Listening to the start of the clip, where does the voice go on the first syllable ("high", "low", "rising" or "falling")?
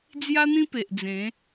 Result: high